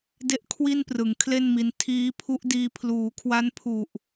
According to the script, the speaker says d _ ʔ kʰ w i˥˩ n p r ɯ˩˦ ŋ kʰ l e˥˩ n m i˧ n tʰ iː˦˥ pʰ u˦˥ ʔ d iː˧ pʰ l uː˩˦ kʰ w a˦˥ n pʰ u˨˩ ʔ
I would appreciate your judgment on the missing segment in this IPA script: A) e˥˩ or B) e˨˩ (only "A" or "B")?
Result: A